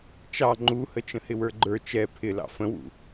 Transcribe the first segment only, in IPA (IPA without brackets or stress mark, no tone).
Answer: t͡ʃ